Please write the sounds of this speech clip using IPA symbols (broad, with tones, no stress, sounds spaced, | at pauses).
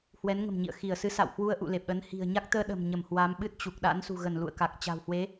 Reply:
h w ɛ˨˦ n ŋ ə̤˨˩ m ɲ ḭ˧˨ ə̯ x i˧˩ ə̯ s ɨ˨˦ s a̰˧˨ w h w u˧ ə̯ ʔ ṵ˧˨ l e˨˩ p̚ ɗ ə˨˦ n h i̤˨˩ ə̯ ɲ a˦˥ k̚ t̪ əː˧ ɗ ə̤˨˩ m ɲ ə˧˩ m h w a˨˦ m ɓ ɨ˦˥ t̚ t͡ɕ u˨˩ k̚ ɗ a̰˧˥ n s ṳ˨˩ ɣ ə˧˩ n l ṵ˧˨ ə̯ k a˨˩ k̚ t͡ɕ a̤˨˩ w h w e˨˦